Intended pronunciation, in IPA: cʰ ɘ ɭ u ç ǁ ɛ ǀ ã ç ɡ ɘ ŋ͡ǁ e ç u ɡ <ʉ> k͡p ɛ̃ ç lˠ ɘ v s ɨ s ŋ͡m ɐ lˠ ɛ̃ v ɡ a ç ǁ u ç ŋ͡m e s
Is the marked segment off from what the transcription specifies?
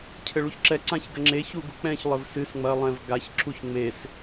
yes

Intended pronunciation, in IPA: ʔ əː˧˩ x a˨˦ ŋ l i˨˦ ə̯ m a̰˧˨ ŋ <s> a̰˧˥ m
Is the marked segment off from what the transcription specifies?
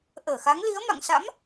no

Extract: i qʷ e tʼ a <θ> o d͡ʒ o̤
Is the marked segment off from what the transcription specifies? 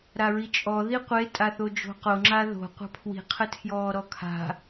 no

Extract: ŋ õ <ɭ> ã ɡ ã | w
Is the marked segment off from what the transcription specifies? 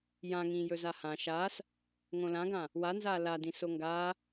yes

